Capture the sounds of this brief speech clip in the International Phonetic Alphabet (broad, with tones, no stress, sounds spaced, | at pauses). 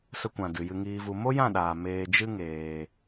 s ə˧ kʷ ã˨ d ɨ˨ j ɨ˧ ŋ iː˧ v u˧ m o˦ j ã˦˨ ɗ aː˨ m eː˧ d͡ʒ ɨ˦ ŋ eː˧